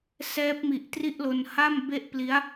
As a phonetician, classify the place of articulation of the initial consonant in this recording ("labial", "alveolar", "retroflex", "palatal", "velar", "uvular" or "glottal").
alveolar